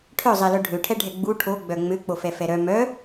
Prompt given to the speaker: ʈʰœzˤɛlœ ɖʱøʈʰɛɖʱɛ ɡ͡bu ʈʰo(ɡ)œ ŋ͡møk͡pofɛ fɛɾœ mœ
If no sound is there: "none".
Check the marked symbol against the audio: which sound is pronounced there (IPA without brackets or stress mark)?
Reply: ɡ͡b